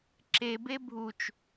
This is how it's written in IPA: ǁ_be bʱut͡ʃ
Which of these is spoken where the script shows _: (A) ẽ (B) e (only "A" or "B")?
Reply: B